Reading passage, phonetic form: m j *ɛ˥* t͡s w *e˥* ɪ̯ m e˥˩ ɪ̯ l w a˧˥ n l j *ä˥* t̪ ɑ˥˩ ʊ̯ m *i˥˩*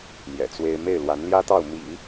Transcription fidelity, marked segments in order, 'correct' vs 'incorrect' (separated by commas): incorrect, correct, correct, incorrect